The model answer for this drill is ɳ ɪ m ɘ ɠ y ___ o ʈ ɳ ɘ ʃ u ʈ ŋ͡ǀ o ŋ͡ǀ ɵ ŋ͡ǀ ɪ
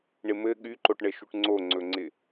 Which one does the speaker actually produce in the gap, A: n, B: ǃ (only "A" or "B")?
B